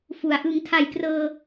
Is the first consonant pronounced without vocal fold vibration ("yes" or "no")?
yes